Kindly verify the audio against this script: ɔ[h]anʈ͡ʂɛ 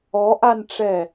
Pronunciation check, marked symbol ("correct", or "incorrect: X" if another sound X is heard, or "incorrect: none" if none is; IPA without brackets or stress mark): incorrect: ʔ